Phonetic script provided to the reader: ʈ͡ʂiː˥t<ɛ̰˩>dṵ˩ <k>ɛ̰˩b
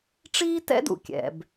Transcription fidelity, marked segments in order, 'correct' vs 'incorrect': incorrect: ɛ̰˥, incorrect: kʲ

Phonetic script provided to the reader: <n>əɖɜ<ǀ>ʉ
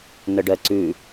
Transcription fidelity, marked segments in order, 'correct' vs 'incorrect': correct, correct

